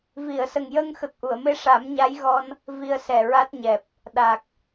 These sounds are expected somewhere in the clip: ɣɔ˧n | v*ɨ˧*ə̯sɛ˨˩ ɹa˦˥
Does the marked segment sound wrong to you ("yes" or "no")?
yes